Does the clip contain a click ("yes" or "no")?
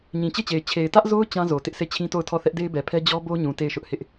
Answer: no